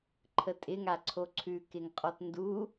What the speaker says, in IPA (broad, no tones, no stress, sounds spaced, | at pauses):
ǃʰ ə tʼ ɪ ŋ a ǀʰ o ǀʰ ʉ k ɪ ŋ qʼ ɔ t n d u